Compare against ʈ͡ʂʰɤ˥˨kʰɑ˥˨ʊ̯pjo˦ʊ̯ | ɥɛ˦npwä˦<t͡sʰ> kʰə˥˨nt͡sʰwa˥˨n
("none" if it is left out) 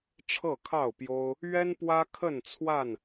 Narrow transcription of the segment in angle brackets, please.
none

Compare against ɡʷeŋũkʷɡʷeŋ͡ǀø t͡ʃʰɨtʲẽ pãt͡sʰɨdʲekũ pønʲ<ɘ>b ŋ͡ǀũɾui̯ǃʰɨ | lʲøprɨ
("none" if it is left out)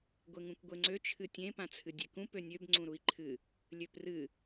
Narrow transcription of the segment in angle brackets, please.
ø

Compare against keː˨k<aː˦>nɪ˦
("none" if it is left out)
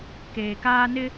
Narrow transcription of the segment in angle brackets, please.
aː˦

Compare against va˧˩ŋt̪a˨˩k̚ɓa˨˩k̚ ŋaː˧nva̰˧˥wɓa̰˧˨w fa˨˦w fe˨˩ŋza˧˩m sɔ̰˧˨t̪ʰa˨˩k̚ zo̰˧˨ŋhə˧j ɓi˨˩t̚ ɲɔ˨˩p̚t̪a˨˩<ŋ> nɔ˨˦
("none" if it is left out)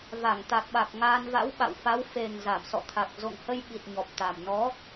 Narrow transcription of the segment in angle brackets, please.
m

